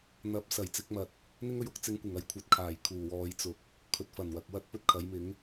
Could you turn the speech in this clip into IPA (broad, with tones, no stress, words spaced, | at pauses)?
n̪ɐ˨˥p̚ sɐ˨˩jt͡sɪ˨˥k̚mɐ˨t̚ | n̪ɪ˥ŋɵ˧ɥʊ˧k̚ t͡sɪ˧ŋkʷɪ˨˩ŋ ɐ˨˧j kʷʰɐ˨˥t̚kʰaː˨˩jkʰuː˨˩ wɔː˧j t͡sʊ˨k̚ | kʰɵ˨˥t̚fɐ˨˩nwɐ˨k̚ wɐ˥t̚pɵ˥t̚kʰɐ˨˥jmɪ˨˥ŋ